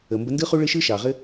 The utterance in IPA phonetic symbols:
ə˨ m b ə˧ n d ɯ˦ χ u˦ ɭ ɘ˦ ʃ ɯ˦ ʃ ɑ˨ ʁ ɘ˦

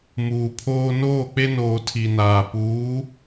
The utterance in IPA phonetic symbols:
m uː˨ pʰ oː˦ n oː˦˨ k͡p e˦ n oː˨ tʰ i˨ n aː˨ p uː˨˦

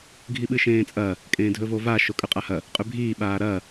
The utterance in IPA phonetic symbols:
ɡʱ i ɓ ɨ ʃ ẽː t͡sʼ ɐ | kʼ ẽː dʱ ɵ v o v a ʃ o kʼ ʉ qʼ a h ɐ | qʼ ʉ bʱ iː ɓ aː ɾ ɐ

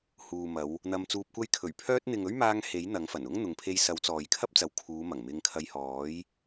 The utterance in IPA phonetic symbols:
h uː˨ m ɐ˨˧ w | n̪ ɐ˧ m t͡s uː˧ p̚ kʷ ɐ˥ j kʰ ɵ˨˩ ɥ pʰ œː˧ t̚ n̪ ɪ˨ ŋ ɵ˥ ɥ m aː˧ ŋ h e˨˥ j n̪ ɐ˨˥ ŋ f ɐ˨˩ n ʊ˥ ŋ n̪ ʊ˨ ŋ pʰ e˧ j s ɐ˨˥ w t͡s ɔː˨ j kʰ ɐ˥ p̚ t͡s ɐ˨˧ w kʰ uː˨˧ m ɐ˨˩ ŋ m ɪ˧ ŋ kʰ ɐ˧ j h ɔː˨˥ j

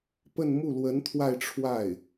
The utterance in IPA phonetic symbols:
p ə˥˧ n m u˥˩ l w ə˧˥ n t̪ʰ w a˥˧ ɪ̯ ʈ͡ʂʰ w a˥˩ ɪ̯

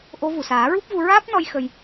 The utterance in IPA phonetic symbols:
ʔ o˧˥ v u˨˩ s aː˨˩˦ ɹ u˦˥ p̚ v u˧ ɹ aː˦˥ p̚ n ɔ˧ j x ə˧ j

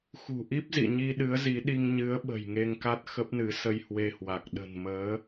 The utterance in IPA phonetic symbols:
x ṳ˨˩ ʔ i˦˥ p̚ z ḭ˧˨ ɲ i˧ ɗ ɨ˨˦ ə̯ z i˨˦ ɗ i˧ ŋ ɲ ɨ˨˦ ə̯ ɓ ə̤˨˩ j ŋ e˧ ŋ k a˦˥ t̚ x ə˦˥ p̚ n ɨ˨˦ s ə˧ j h w e˧ h w a˨˩ k̚ ɗ ə̤˨˩ n m əː˨˦

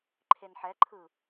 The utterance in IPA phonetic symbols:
ǃʰ e n ħ ɛ ǃʰ ɯ

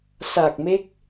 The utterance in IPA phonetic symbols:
s a˨˩ k̚ m e˦˥ k̚

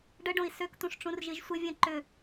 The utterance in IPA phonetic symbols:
ɖ ə ɖ õ i̯ s ø k t̪ ũ ʂ ʈ͡ʂ ũ r ʒ i ʒ sʷ ɪ vʲ ɛ̃ ǃ ʏ

